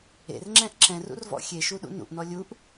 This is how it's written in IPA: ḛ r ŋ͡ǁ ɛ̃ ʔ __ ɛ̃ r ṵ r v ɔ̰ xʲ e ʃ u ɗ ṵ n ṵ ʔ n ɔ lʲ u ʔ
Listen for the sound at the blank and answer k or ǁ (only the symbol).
ǁ